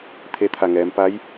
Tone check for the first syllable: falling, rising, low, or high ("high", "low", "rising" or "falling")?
rising